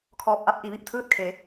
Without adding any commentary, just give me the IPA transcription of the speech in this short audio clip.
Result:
kʰ ɔː˧ p̚ ʔ a˧˥ p̚ ʔ i˩˧ ʋ i˧˩ p̚ t̪ʰ ɯː˥˨ t̚ kʰ e˩˧

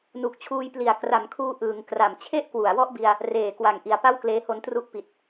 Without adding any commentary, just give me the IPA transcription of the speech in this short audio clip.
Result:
n u˨˩ k̚ t͡ɕʰ uː˧ j p l i˨˩ a̯ k r a˩˦ m kʰ uː˧ ʔ ɯː˩˦ ŋ k r a˨˩ m t͡ɕʰ e˥˩ ʔ k w u˩˦ a̯ w ɔ˥˩ ʔ b i˧ a̯ | r eː˩˦ k w a˨˩ ŋ ʔ i˨˩ a̯ p a˥˩ w k l eː˧ h o˧ n t r u˦˥ ʔ p i˨˩ t̚

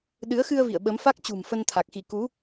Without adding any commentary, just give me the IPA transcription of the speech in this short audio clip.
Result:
ɗ ɨ˨˦ ə̯ x ɨ˧ ə̯ v ḭ˧˨ ə̯ ɓ ə˨˦ m f a˦˥ k̚ t͡ɕ ṳ˨˩ m f ə˧ n t̪ʰ a˨˩ k̚ x ḭ˧˨ k u˨˦

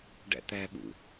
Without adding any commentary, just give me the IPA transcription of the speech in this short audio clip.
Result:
ɖ æ̰ t̪ æ ɓ ṵ

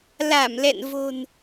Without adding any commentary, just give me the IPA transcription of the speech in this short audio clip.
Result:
l a˧˩ m l ɛ̰˧˨ n v o̤˨˩ n

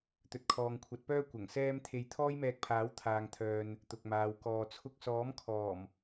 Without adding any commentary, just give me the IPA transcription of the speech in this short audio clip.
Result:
t̪ ɵ˨ t̚ kʰ ɔː˨ ŋ kʷʰ ɐ˨˥ t̚ p œː˥ kʷ ɐ˨˩ ŋ s ɛː˥ m t̪ʰ e˧ j t̪ʰ ɔː˥ j m ɛː˧ k̚ pʰ aː˨˥ w t̪ʰ aː˨ ŋ t̪ʰ œː˨ n | t̪ ʊ˨ k̚ m aː˨˧ w k ɔː˧ t͡sʰ ʊ˧ k̚ s ɔː˨˥ m kʰ ɔː˨˩ m

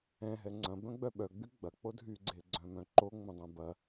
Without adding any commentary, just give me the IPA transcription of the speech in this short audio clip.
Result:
ɛ̃ ɦ ɛ ŋ͡ǀ ɐ̃ b œ̃ ɡ͡b œ ɓ œ ɡ͡b y ɡ͡b ɐ k͡p o dʱ y ɡ͡ǀ e ɡ͡ǀ œ̃ m œ̃ ǃ o ŋ͡m œ̃ dˤ œ̃ b ɐ

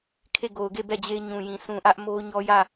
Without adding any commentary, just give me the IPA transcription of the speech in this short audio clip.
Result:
kʰ e˦˨ ɡ o˨ ʊ̯ ɡ e˦˨ b ɛ˦˨ d͡ʑ e˦ ɲ ũ˨ j ĩ˨ sʰ ũ˨ ʔ ä˦ ʔ m o˦ ʊ̯ ɲ ɔ˦ j ä˦˨

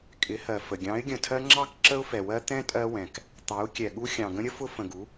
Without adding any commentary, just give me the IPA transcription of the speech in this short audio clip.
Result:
kʼ ɪ˨˥ h ɜ˨ f ə˨ ɡʲ ɑ̃˨˥ ɪ̯ ɡʲ ə̃˨ tʰ ɜ˦ ŋ͡ǁ ɑ˦ k ǁ ə˦ ʊ̯ f ɛ˨ w ɜ˦ t̪ ɛ̃˦ tʼ ɜ˦ w ɛ̃˨ k | t̪ ɑ˨˥ ʊ̯ kʲ ɛ˨ ɠ u˦ xʲ ɑ̃˨ ɡ ə̃˦ ɾʲ ə˦ f ʊ˦ f ə̃˨ ɡ u˨˥

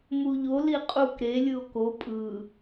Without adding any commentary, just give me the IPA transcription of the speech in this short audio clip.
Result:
m u ʎ o l i qʼ u k ɾ e lʲ ɯ o̯ k o pʼ ɯ

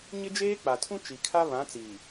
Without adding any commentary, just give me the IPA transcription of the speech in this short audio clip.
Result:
ɲ ɪ˦ d͡ʒ eː˦ k͡p a˨ tʰ ũ˦ t͡ʃ i˨ kʰ a˦ β ã˨˦ t͡s iː˨

